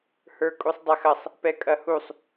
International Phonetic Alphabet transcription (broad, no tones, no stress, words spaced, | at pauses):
hə˞kʼusˤdˤæxɐsˤ | pɛkʼɐhusˤ